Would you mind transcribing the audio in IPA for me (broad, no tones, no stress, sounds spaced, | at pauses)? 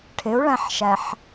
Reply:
ʈʰ ɪ u̯ ɭ æ̃ ħ ʃ æ ħ